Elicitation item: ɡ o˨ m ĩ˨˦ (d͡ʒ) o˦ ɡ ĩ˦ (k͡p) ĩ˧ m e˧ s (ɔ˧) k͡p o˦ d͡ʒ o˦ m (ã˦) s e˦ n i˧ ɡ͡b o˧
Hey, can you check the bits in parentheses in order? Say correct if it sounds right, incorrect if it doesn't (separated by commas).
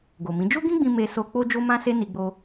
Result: correct, incorrect, incorrect, correct